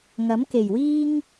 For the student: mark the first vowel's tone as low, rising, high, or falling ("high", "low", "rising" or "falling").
rising